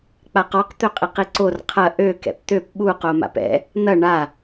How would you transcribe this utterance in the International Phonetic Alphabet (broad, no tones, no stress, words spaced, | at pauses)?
k͡paqɔq t̪øqʼiqiǀor qʰɐ ʔø kɛ̰pt̪øp ɓu qoma̰pɛ̰ | n̪ɐ ɳa